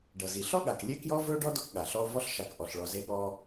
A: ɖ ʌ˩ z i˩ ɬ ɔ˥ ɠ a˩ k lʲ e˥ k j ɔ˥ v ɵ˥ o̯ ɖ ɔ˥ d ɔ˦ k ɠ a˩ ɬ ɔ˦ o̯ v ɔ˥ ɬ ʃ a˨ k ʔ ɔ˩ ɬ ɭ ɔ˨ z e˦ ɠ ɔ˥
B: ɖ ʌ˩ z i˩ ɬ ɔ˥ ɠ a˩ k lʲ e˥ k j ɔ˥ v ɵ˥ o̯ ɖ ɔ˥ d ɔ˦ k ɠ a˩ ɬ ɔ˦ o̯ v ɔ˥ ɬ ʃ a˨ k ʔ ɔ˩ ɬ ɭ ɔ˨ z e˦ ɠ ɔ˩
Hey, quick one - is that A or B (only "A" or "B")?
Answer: A